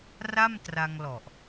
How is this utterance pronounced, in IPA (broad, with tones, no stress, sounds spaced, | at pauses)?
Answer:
r a˥˩ m t r a˧ ŋ l ɔ˨˩ ʔ